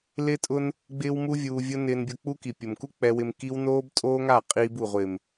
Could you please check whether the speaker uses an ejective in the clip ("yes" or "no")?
yes